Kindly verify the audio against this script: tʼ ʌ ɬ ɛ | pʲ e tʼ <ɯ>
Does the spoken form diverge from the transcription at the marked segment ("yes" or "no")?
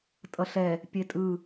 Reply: no